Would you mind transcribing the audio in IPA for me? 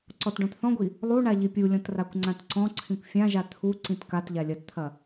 ǀ ɔ t ɖ ɔ̃ t θ ɔ̃ ɡʷ i | lˠ u ɳ a ʎ i pʲ u lʲ ɔ̃ t r a kʷ ŋ͡ǀ ã t ǀ ɔ̃ ǀʰ ĩ kʷ fʲ ã ʒ a t̪ʰ u ǀ ĩ t k a t ʎ a lʲ ɐ t t̪ʰ ɐ

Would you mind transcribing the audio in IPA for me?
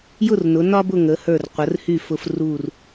j ʊ˥˧ r n ʊ˩˧ n ɒ˥ b ʊ˥˧ ŋ ə˩˧ h ə˞˧˩ r qʷ ə˩˧ r h y˧˩ f ʊ˧ f r u˧˩ r

